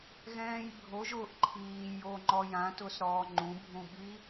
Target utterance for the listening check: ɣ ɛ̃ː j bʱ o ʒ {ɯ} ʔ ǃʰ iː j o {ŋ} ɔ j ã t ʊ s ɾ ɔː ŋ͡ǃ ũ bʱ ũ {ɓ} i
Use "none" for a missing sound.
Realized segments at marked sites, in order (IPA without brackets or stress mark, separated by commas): ʊ, ŋ͡ǃ, ɓ